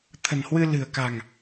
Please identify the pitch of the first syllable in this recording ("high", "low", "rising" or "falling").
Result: low